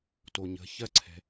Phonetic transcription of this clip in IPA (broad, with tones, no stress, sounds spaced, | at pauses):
t o˩ ɲ ə̤˩˧ ç ɜ˧ ǀʰ ɛ̤˩